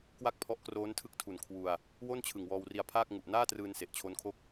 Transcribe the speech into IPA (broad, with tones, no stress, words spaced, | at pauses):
kwa˥˩k̚pʰɔ˦˥ʔkroː˦˥ntʰɯ˦˥k̚ tʰu˨˩nkʰwu˧a̯ | wo˥˩nt͡ɕʰɯ˨˩ŋ wɔː˧wri˧a̯pʰaː˥˩k̚ ŋu˨˩ʔnaː˥˩trɯː˧n se˨˩ʔt͡ɕʰo˦˥nkʰo˥˩k̚